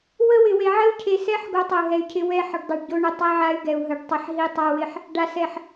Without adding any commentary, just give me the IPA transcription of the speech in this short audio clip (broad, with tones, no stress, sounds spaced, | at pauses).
w ə˦ w ɪ˨ w e˨ ʕ ə˦ u̯ cʰ e˨ s ɛ˦ ħ ɡ o˦ tˤ ə˨ u̯ ɦ ɛ˨ y̯ cʰ ɪ˦ w ɛ˦ ħ ə˨ ɖ dˤ ɪ˨ ɖ ɟ o˦ ɳ ə˨ tˤ ɛ˦ ʕ a˦ y̯ ɡ ɛ˨ u̯ ɦ ə˨ ɖ tˤ ɪ˨ ħ ɦ i˦ tˤ a˦ w ɪ˦ ħ | ɖ a˨ s ɛ˨ ħ